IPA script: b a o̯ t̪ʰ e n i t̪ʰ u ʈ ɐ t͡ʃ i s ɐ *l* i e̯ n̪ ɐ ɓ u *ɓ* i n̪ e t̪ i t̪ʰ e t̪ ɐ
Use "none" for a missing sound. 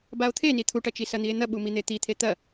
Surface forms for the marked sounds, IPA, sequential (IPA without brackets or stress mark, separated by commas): n̪, m